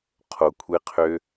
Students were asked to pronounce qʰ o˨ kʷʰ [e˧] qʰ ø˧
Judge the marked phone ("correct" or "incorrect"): correct